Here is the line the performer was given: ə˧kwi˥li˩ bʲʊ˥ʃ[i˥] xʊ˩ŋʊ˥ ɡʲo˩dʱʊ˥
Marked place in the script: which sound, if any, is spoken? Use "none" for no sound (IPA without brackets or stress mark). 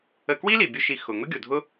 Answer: i˧